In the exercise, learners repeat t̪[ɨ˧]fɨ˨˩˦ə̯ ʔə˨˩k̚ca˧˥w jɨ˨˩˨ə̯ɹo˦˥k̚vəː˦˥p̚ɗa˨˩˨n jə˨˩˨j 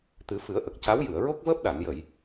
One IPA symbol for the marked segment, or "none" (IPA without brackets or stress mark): ɨ˨˩˦